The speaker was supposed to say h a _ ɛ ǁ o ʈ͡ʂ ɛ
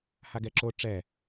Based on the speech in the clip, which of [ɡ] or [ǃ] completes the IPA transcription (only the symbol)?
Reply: ɡ